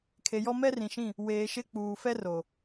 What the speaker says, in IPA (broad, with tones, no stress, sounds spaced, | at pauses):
kʰ e˨ j ɔ˦ m ɛ˦ r ĩ˨ ʃ ĩ˦˨ | w eː˨ ʃ ɪ˦˨ k͡p uː˨ f ɛ˦ r o˨